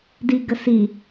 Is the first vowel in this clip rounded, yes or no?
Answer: no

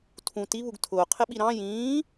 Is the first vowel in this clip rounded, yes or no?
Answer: yes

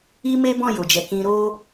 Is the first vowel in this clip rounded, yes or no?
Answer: no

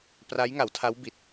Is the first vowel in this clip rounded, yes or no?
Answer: no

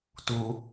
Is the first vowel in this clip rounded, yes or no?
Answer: yes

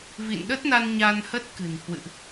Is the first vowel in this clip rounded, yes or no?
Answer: no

